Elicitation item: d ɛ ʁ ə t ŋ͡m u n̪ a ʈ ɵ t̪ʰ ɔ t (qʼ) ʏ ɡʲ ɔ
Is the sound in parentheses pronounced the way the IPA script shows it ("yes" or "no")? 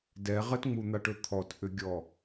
no